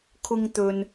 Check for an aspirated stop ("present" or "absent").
present